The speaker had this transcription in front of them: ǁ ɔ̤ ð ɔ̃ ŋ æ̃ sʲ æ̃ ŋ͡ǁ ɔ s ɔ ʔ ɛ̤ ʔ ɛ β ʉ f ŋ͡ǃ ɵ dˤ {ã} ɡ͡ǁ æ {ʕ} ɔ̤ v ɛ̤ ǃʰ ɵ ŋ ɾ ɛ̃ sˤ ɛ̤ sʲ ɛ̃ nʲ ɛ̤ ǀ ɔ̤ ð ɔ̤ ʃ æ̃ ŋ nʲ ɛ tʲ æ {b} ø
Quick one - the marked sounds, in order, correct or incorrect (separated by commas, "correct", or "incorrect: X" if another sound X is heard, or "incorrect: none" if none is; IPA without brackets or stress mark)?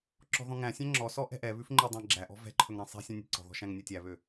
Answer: incorrect: æ̃, incorrect: ʔ, incorrect: β